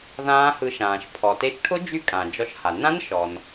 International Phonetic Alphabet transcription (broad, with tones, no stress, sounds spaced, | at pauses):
ð ãː˦˥ h ɯ˧ ʃ ãː˩ ʃ pʰ ɔ˩ t e˧ ʃ ʈʰ ʊ˦˥ d͡ʒ y˦˥ kʼ ã˩ d͡ʒ ɔ˧ ʃ h a˩ n ã˦˥ n ʃ ɔ˩ n